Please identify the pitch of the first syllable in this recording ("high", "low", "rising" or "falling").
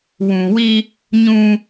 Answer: low